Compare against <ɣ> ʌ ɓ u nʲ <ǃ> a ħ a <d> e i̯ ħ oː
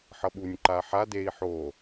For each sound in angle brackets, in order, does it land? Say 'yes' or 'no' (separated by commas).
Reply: no, yes, yes